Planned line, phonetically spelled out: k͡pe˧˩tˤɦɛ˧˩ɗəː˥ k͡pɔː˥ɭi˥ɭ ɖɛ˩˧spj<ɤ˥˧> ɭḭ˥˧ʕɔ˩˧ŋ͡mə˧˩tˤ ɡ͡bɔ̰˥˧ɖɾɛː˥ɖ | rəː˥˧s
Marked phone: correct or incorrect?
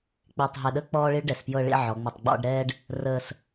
correct